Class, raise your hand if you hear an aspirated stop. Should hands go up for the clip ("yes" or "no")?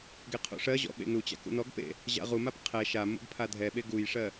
yes